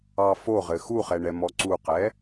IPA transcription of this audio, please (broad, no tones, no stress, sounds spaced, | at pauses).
ɑ f o ʁ ɘ x u χ ɛ ɳ ɛ m ɔ ǀ u q ɛ